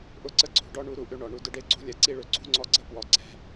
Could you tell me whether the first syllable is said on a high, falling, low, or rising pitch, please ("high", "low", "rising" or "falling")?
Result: falling